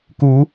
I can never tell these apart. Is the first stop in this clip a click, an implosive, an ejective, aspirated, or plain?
plain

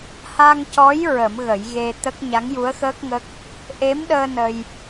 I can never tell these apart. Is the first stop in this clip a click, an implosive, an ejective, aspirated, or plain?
plain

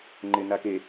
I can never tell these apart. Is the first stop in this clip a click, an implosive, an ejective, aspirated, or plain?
click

